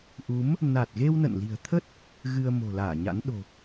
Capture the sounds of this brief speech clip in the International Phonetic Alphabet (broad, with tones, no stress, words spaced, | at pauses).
ʔu˨˦m | na˨˩t̚ɣe˧w nə̰˧˨nli̤˨˩ə̯t̪ʰə˦˥t̚ | ɣɨ˧ə̯ mo̤˨˩laː˧˩ɲa̰˧˥n ɗo̤˨˩